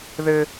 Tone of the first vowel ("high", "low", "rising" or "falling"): high